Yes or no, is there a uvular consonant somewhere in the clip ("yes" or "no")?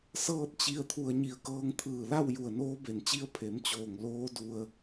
no